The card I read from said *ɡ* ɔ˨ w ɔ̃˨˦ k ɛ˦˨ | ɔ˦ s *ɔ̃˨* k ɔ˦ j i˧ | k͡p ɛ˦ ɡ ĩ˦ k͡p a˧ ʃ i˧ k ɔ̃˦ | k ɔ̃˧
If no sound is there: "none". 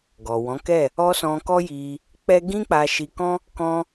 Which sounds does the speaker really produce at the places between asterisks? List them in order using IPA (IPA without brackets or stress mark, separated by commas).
ɡ, ɔ̃˧